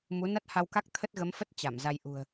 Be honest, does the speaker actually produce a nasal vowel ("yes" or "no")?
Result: no